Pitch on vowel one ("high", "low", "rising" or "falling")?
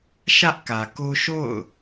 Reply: high